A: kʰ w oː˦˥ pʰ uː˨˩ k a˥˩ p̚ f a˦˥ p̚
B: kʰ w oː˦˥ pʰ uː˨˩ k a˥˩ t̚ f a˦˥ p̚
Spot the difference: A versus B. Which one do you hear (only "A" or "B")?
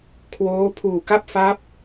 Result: A